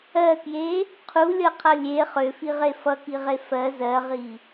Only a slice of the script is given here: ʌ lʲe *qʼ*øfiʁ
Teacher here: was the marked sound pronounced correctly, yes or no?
no